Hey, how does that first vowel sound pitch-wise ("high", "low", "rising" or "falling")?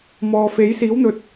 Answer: low